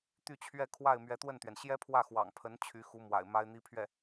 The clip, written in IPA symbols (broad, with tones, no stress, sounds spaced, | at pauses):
t̪ y˥˧ t͡ɕʰ ɥ ɛ˥˧ kʰ w a˥˩ ɪ̯ m ɥ ɛ˧˥ t̪ w ə˥˩ n t̪ ɥ ɛ˩ n ɕ j ɛ˥ pʰ w ä˥˩ x w ɑ̰˨˩ ŋ pʰ ə˧˥ n t͡ɕʰ y˧˥ x u˧˥ m w a̰˨˩ ɪ̯ m a˥ ɪ̯ n̪ i˥ pʰ ɥ ɛ˥˩